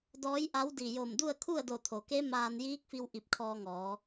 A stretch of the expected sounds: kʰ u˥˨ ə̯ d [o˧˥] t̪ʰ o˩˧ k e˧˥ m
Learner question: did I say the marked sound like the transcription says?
no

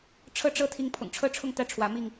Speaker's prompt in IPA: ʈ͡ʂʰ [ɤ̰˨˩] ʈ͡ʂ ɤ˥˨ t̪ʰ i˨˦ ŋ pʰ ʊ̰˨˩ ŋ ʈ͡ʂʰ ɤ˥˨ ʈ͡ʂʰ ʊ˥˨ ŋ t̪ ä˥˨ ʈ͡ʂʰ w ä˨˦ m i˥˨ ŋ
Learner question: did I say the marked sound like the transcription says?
no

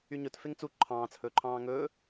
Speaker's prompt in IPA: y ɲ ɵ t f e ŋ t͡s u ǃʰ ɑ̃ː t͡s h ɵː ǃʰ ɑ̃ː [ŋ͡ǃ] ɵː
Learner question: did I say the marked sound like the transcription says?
no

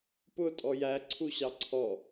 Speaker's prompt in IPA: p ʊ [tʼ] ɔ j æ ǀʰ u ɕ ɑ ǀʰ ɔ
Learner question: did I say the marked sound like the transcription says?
yes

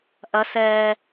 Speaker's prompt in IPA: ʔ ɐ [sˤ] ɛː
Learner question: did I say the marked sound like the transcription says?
no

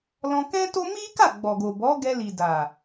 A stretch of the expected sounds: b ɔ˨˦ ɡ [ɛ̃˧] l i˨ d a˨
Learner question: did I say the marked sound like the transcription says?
no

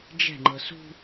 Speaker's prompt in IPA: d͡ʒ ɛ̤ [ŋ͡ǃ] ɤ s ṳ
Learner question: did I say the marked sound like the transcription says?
yes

